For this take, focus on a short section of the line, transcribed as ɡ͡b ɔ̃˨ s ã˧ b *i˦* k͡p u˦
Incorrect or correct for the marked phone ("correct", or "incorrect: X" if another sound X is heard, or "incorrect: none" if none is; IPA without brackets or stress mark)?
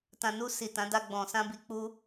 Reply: correct